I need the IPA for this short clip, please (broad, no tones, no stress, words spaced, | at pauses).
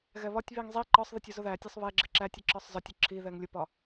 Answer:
ɣɛβɒtʲβiŋ zˤi ǃɒsˤðətʲ ʊzʊðætʲɒsˤ βɛɡ͡ǁɪ ǁætʲə ǁɒsˤzɒtʲʊ ǁʰiðɛŋ lʲʊpɒ